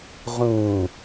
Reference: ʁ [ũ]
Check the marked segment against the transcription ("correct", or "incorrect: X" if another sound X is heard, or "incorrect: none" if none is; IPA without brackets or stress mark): correct